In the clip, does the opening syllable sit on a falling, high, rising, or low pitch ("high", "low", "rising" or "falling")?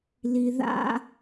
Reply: low